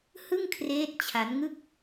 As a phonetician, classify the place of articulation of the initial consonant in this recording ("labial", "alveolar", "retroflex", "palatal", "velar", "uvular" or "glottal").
glottal